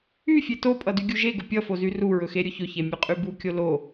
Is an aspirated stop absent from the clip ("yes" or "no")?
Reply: yes